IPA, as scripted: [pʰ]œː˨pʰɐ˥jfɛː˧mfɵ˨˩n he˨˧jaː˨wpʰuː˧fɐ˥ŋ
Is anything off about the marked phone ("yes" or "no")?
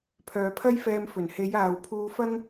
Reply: no